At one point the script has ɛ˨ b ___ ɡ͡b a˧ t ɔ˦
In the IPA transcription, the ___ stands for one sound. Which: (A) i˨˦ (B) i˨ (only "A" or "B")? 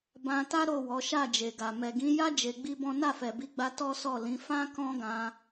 A